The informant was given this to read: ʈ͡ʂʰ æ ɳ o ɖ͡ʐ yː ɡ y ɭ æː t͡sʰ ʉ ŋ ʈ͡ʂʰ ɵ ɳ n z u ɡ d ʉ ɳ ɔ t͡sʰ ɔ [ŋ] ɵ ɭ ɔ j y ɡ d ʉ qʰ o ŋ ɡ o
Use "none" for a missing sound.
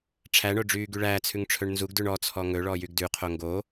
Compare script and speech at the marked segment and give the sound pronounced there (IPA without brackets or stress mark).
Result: ŋ